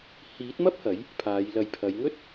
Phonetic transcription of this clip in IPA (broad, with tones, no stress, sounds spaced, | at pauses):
h iː˨˥ t̚ m ɐ˥ p̚ h ɐ˨˥ j | pʰ aː˨˧ j l ɐ˨ j pʰ ɐ˨˧ j ŋ ɵ˥ t̚